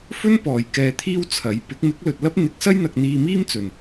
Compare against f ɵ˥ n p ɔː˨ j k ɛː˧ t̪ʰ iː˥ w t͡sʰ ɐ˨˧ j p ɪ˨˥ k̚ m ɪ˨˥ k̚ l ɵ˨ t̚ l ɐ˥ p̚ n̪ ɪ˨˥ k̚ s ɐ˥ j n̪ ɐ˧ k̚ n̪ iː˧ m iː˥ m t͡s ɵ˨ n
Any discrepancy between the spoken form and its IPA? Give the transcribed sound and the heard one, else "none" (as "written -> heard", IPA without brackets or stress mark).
none